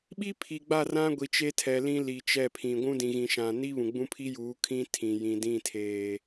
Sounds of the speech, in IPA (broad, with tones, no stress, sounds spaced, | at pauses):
ɓ i˦ pʰ i˨ ɡ͡b a˦˨ r ã˦ ɡʷ i˨ t͡ʃ e˦ tʰ ɛ˨ l ĩ˦ l i˨ t͡ʃ ɛ˦˨ pʰ ĩ˨ ɡʷ ũ˦ d ĩ˨ ɣ ĩ˨ ʃ ã˨ n i˦ β ũ˨ ɡ͡b ũ˦ pʰ i˦ j uː˨˦ kʰ ĩ˦ tʰ ĩ˨ j ĩ˨ d ĩ˦˨ tʰ eː˨